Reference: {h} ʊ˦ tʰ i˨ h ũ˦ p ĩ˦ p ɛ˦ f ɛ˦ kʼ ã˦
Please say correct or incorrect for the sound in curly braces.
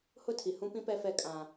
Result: correct